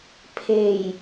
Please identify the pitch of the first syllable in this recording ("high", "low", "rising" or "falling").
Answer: low